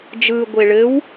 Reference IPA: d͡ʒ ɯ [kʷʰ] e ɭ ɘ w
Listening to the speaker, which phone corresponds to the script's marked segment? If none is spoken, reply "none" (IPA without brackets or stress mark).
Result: ɡʷ